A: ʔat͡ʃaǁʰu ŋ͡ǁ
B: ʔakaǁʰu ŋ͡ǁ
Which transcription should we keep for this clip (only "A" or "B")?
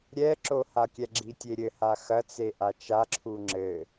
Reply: A